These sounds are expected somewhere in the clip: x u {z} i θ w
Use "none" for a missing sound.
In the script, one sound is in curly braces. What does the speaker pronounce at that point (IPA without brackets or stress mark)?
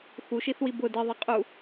ʃ